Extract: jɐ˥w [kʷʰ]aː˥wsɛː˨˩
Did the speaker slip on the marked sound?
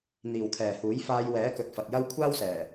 no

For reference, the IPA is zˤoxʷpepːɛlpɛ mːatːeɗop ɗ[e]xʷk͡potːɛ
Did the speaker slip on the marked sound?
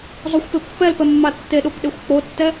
no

